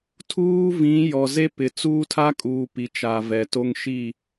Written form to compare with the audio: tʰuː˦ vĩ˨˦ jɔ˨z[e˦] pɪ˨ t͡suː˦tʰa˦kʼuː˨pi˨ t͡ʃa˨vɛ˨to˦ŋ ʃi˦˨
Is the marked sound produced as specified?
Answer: yes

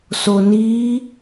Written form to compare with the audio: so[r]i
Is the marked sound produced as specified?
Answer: no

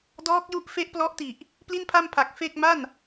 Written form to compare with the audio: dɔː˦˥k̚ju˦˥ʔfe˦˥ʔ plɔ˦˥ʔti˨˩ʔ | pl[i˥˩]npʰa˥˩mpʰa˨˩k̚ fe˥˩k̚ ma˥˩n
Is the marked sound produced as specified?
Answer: yes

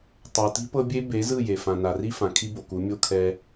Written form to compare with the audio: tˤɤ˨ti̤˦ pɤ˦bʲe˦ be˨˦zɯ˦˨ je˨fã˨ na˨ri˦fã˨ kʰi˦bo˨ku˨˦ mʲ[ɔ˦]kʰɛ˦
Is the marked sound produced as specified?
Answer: no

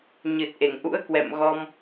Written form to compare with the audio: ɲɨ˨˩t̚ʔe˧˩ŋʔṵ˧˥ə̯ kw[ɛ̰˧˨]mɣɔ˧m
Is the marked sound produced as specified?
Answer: yes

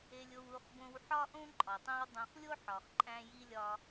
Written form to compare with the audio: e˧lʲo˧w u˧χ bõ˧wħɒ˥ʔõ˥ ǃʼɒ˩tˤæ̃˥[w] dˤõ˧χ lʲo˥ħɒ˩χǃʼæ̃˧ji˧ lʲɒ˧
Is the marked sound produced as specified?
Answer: yes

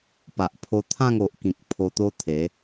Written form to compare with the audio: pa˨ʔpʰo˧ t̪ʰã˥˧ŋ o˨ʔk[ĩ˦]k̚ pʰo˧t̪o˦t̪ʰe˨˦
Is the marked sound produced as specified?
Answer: no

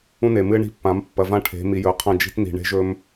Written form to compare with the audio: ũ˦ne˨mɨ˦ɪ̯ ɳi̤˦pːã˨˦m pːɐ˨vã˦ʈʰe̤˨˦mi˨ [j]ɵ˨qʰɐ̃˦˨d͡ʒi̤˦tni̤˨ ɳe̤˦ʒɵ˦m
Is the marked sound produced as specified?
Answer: yes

